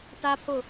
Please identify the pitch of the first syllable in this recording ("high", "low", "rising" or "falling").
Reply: high